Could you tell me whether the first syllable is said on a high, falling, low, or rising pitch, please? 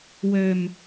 low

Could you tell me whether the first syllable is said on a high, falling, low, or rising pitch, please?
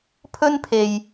high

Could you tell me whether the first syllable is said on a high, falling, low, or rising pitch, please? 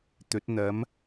rising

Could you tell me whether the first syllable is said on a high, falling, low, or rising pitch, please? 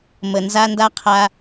low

